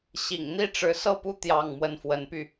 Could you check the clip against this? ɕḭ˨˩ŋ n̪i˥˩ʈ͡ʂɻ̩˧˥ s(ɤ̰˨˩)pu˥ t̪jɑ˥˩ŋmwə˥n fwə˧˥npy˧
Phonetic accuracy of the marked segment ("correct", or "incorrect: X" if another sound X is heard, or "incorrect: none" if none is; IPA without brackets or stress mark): incorrect: ɤ˥˩